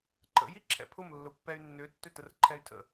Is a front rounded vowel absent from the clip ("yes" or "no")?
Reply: no